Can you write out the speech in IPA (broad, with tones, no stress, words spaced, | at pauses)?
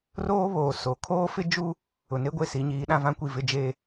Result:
roː˦βoː˨ so˨ kʰoː˦fɪ˦d͡ʒu˦ | ʊ˨ne˦ɡʷe˦˨ si˨˦ ɲiː˨˦ɗã˦vã˦kʷi˦˨ vɪ˦d͡ʒeː˦